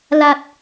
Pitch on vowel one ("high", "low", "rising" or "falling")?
low